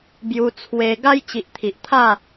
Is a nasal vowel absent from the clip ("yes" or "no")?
yes